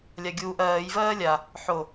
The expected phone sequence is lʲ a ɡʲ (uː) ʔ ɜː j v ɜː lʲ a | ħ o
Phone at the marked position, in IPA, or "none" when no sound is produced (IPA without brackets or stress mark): uː